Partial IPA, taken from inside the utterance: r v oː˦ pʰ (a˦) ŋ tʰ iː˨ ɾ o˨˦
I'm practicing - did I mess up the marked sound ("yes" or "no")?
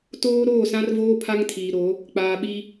no